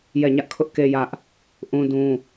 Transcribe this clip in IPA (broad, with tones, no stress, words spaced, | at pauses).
jɛ˦˨ɲä˦ʔkʰʊ˦ʔke˦ jä˦ʔ | ʔũ˦dũ˦